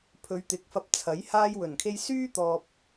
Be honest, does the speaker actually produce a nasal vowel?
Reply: no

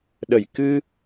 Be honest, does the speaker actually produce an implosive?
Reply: yes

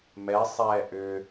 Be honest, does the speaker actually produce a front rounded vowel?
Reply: yes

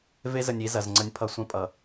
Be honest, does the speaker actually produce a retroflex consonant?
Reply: no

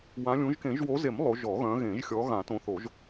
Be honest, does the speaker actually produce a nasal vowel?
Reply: yes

